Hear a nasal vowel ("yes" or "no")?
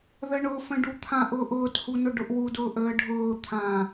yes